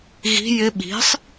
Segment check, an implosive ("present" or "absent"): present